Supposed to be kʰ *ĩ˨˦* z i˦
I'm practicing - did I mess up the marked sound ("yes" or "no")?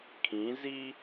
no